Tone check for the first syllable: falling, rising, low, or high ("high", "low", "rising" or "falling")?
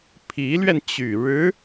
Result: rising